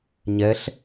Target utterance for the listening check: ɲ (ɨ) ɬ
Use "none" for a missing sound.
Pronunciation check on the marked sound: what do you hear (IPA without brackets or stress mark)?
ɛ